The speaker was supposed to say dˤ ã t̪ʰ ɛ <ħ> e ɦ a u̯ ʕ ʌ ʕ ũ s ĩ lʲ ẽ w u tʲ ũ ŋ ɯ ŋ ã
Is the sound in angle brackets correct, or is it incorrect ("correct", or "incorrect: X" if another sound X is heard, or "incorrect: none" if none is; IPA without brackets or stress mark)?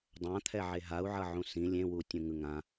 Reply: incorrect: ʕ